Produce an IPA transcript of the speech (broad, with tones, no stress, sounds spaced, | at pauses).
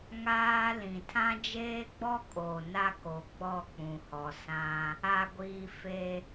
ŋ aː˦ l ĩ˨ tʰ ã˦ d͡ʒ eː˦ ɡ͡b ɔ˦ kʼ o˨ n a˦ k o˨ ɡ͡b ɔ˦˨ k͡p ũ˨ h ɔ˨ s ã˦ | a˨ ɡʷ iː˨ f e˦